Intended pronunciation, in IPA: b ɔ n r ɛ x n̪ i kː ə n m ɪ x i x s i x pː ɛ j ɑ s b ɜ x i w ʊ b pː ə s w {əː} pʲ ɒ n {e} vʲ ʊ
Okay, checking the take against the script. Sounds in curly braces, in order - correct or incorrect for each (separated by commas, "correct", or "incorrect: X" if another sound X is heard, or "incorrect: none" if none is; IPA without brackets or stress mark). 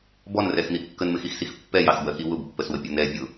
incorrect: ə, incorrect: ɛ